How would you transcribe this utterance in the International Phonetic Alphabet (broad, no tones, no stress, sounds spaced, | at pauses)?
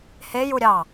h e j u ɾʲ ɑ